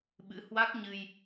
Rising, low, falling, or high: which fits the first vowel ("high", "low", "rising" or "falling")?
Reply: rising